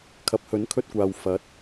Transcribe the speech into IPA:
kʰ ɐ˨˥ p̚ h ɵ˨˥ n kʰ ɵ˧ t̚ kʷ aː˨ w f ɐ˨˥ t̚

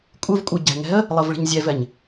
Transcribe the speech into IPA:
kʷʼ ɨ v kʷʼ ɯ ɟ ɛ̤ ŋ ɛ̤ ə̯ | lˠ ɤ v ɭ i̤ ɲ zʲ ɛ v ɛ ɲ

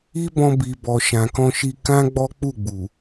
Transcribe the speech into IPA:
i˦ b ɔ̃˧ b i˨ b ɔ˨ ʃ ã˨ k ɔ̃˧ ʃ i˧ k ã˦ ɡ͡b ɔ˦ k͡p u˦˨ ɡ͡b u˨

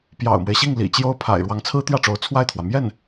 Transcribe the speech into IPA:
p j ɑ̰˨˩ ʊ̯ m w e˦ ɪ̯ ɕ i˥˩ ŋ l ḭ˨˩ t͡ɕ j o˥ ʊ̯ pʰ a̰˨˩ ɪ̯ ɻ w ɑ˧˥ ŋ t͡sʰ ɹ̩˥ t̪ j ä˥˩ ʈ͡ʂ o˧˥ ʊ̯ t͡sʰ w a˥˩ ɪ̯ t̪ʰ w ä˩ m j ɛ˥˩ n

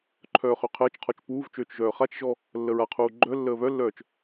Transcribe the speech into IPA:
ǃʰ œː χ ø qʰ əː t͡ʃ qʰ ɔ t͡ʃ p uː v t͡ʃ øː t͡ʃ ʒ œː χ a t͡ʃ ʒ ɔ | lː ə ɹ a qʰ uː ɡ͡ǃ œ lː əː β œ lː œː t͡ʃ

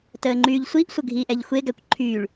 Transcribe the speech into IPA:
t əː ŋ͡ǃ yː ʎ sʷ i ʔ sʷ ə ɡʱ iː ʔ ɛ ʎ xʷ e ɡ æ kʷ ǃʰ yː ɭ

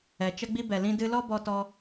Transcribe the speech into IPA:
ɛ˨ t͡ʃ ə˦ ɡ͡b i˦ b ɛ˨ l ĩ˧ d ɨ˧ l ɔ˦ b ɔ˧ t ɔ˧

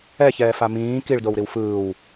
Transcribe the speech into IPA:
ɛ ç ɛː f a m ĩː k i ɭ d o w ɾ i w f ɯː w

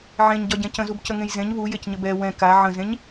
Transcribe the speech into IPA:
ʕ ẽ ɲ ɟ ɒ ɟ ɛ̃ c ə̃ z u b c ə ŋ ẽ j z ẽ ɲ β u j e c ɲ ə b ɛ w ɛ̃ k a ʕ ə̃ z ẽ ɲ

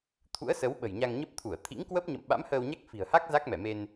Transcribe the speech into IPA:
t̪ʰ ṵ˧˥ ə̯ s ə˨˦ w ɓ ə̤˨˩ j ɲ a˧ ŋ ɲ ə˦˥ p̚ t̪ʰ u˧˩ ə̯ t̪ʰ ḭ˧˥ ŋ k w ə˦˥ p̚ ɲ ə̰˧˨ m ɓ a̰˧˥ m h əː˧ w ɲ a˦˥ k̚ f i̤˨˩ ə̯ h a˦˥ k̚ z a˦˥ k̚ m ɛ˧˩ m e˧ n

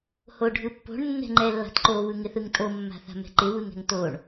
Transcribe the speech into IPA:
h o ɖʱ ɯ pː o̤ ɳ nː ɛ̤ ŋ͡ǃ ɛ lː a̤ t ǃ o β ɯ ŋ ɪ θ ɯ ŋ tʼ o mː a̤ θ a̤ m ɛ̤ ǃ ɪ β ɯ ŋ ɛ̤ ŋ t o ɳ

